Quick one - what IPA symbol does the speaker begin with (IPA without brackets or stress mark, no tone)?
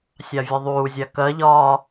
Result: sʲ